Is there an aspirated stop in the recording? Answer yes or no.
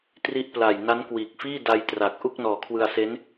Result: yes